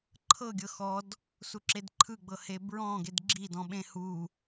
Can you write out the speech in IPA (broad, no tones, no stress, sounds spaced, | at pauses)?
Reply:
ǃʰ ɤ ɡʲ ɤ x ɔ d | s u ǁ e d ǃʰ ɯ ɡ͡b ɤ h e b ɹ ɔ̃ ɡ e d ɡ͡ǁ i d ɔ̃ ɓ ẽ h u